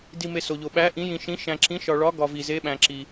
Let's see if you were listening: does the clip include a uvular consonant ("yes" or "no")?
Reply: no